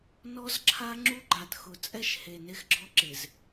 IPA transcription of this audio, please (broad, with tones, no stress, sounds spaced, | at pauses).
n ɔ˦ z ǁʰ a˦ ŋ͡ǁ u˦ ɡ͡ǃ a˨ t x ʊ˨ t͡sʼ ɛ˦˨ ʃ h e˨ n e˦ x ɡ͡ǁ ɔ˦ ǁ ɪ˨ z